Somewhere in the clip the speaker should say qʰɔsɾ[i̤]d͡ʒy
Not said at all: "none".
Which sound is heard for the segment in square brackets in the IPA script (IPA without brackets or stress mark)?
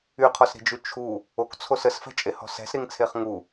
i̤